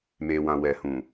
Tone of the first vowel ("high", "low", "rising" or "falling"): low